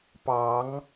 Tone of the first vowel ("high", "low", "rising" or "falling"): rising